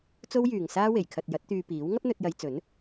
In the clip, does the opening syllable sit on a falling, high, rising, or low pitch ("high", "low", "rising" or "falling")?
high